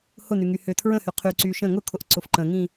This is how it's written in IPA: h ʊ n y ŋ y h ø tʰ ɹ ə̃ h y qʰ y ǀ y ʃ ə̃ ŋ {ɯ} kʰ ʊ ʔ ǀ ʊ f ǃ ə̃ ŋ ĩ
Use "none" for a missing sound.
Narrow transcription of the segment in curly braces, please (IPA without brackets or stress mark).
ʊ